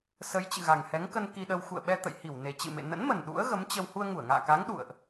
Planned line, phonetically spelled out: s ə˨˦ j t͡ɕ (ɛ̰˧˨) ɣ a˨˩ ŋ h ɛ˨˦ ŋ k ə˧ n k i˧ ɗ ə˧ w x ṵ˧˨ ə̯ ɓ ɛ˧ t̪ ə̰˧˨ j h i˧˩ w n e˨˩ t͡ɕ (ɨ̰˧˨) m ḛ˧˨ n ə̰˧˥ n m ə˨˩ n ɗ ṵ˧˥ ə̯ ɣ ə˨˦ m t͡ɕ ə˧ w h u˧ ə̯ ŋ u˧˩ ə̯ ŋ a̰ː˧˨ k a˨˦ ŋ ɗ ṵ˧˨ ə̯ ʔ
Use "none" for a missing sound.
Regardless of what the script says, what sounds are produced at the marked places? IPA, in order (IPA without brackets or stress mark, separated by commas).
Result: ɨ̰˧˨, ɨ̰˧˨